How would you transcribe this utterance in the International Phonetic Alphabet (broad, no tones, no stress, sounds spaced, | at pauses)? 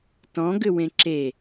t ɔ̃ ɡ ʏ w ẽ ǁ e